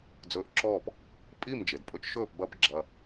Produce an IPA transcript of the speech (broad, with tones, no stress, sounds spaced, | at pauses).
d͡z ɵː˧ ʔ ǁ ɔː˥˩ p | pʼ i˥˩ m d͡ʒ e˩ d pʼ ɵ˧ t͡ʃ ʃ ɵː˥˩ p b ɐ˥ b ɡ͡ǁ ɐ˧